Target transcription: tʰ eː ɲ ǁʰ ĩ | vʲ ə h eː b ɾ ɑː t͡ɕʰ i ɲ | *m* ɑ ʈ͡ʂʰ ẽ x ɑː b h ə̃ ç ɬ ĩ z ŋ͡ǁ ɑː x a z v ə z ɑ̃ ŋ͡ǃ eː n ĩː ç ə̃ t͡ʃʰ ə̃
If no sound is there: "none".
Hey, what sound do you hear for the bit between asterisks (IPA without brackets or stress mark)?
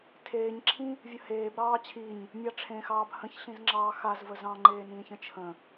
mʲ